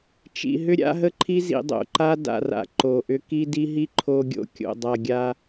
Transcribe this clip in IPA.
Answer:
t͡ʃ ḭ˨ ɦ ʏ˦ ɾʲ a̰˦ ɦ ə˦ ǃʰ i˦ z ḭ˨ dˤ o̰˨ ǃ a˦ d a̰˨ r a̰˨ ǃ o˨ ʔ ʏ˦ k i˦ d i˦ ɦ i˦ ǃʰ o˦ ɡʲ o̰˨ kʲ o̰˨ dˤ a˨ ɡʲ a˦

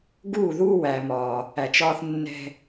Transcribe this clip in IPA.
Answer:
ɡ uː˦˨ ð uː˦ w æ˨ m ɒː˨ | æ˨ t͡ʃ ɒː˦ θ nː ɛ̤˦

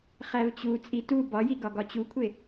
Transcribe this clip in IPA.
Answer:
χ æ v t͡ɕ u t͡sʼ i t u b ɒ j i ɡ ɒ ɡ ɒ t͡ɕ u kʷʰ e

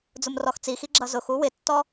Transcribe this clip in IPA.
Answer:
d͡z ʊ m r ɔ x t͡s i x i ɡ͡ǁ ʌ z ʊ x u w ɪ tː ɔ

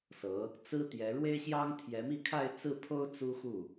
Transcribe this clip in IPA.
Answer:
s ɤ˧˥ | t͡s ɹ̩˥ t̪ j ɛ˧˥ ɻ w e˥ ɪ̯ ɕ j ɑ˥ ŋ t̪ʰ j ɛ˧˥ m i˥˧ kʰ a˥˧ ɪ̯ t͡s ɹ̩˥˩ pʰ o˥ ʊ̯ t͡s u˥ x u˥˩

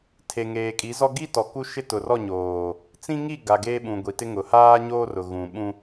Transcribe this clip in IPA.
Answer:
tʰ e˨ ŋ eː˨ kʼ i˨˦ z ɔ˦ ɡ i˦ t ɔ˨ k u˦ ʃ ɪ˦ t ʊ˨ r ɔ˦˨ ɲ oː˨ | t͡s ĩ˦ ŋ i˦˨ ɡ a˨ ɡ eː˦ ɓ ũ˨ ɡʷ i˨ t ɪ˦ ŋ ʊ˨ h aː˦ ɲ oː˦ r ʊ˨ ɣ ũ˨ ɓ ũ˦

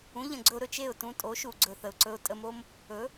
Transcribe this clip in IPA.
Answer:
ũ˩˥ ʎ ə̃˩ ɡ͡ǀ ɵ˧ ʊ̯ ɾ ɵ˩ t͡ʃ e˥˩ ʊ̯ t ũ˧ tʼ o˩˥ ʃ u˩ ɡ͡ǀ ɵ˩ θ ə˩ ʊ̯ ǀ ɵ˧ ʊ̯ tʼ ə˧ m o˥ m | ɵ˩˥

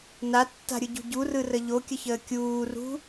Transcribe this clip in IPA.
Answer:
n a tː a̤ ɾʲ ɯ ɟ ṳ ɟ u r ɯ r ə ʎ o kʲ ə ç əː kʲ uː r ṳ

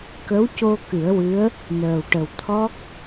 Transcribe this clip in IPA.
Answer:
k ə˧˥ w c o˧ k ɨ˨˩˦ ə̯ w ɨ˧˥ ə̯ | n əː˨˩ w ʈ ə˨˩ w t̪ʰ ɔ˦˥ k̚

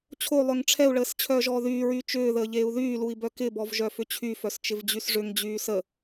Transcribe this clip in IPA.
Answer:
t͡ɕʰ o lˠ œ ŋ ʈ͡ʂʰ ɛ u̯ ɭ əː s t͡ɕʰ œː ʒ ɔː ð yː ɹ yː t͡ʃ ʏː ð əː ʎ eː u̯ ð yː l u i̯ b œ k ɪ b ɔ v ʒ œ f ʏ t͡ɕʰ y f œ s t͡ʃ ɪ v d͡ʑ y s ʐ ʏ ŋ d͡ʑ yː s ə

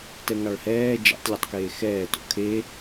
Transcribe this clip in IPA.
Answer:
t ɛ ŋ ɑ ɭ h ɛː d͡ʒ ɛ̰ tˤ lʲ ʌ tˤ k eː x ɛː t o̰ kʰ e

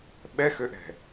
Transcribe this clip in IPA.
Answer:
ɓ ɛ x ø ʔ ɛ̤

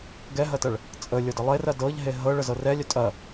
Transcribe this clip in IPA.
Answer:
ɡ ɛ ɦ ɐ t ɐ ɭ | t͡sʼ ə lʲ ɤ d ə lˠ e r ɐ d ɤ ʎ ɦ e ɦ ɤ ɭ ə z ɤ r ɛ lʲ œ tʼ ɐ

